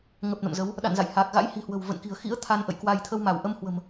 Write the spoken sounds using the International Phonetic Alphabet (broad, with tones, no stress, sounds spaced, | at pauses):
ŋ ə˨˩ p̚ n ə̰˧˨ m z ə˨˦ w | ɗ a̰˧˨ n z a̰˧˨ j h a˨˩ k̚ ɣ a̰˧˥ j h i̤˨˩ h w ə̤˨˩ w v ə̰˧˨ n k i̤˨˩ ə̯ x ḭ˧˥ ə̯ t̪ʰ a˧ n ʔ ə̰˧˨ j k w a˧ j t̪ʰ ə˧ w m a˧˩ w ʔ ə˧ m h w ə̤˨˩ m